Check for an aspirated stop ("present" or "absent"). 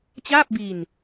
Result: absent